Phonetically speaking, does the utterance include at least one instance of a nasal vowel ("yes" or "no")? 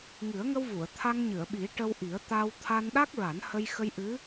no